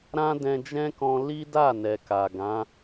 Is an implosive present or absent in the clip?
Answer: absent